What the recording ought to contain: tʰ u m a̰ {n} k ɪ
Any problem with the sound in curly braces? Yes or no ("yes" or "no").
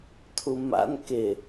no